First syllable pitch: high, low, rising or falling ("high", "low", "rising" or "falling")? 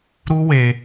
high